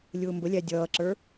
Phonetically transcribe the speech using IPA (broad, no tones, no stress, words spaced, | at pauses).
lʲʊːmbəlʲæ dʲʌːǁə˞